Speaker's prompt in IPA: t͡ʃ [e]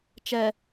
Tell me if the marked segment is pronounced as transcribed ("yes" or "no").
no